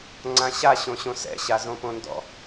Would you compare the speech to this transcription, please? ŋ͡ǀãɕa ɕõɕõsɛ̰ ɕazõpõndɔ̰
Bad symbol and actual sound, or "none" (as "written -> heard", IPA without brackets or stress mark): none